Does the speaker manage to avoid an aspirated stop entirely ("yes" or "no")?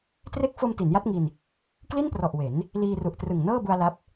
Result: yes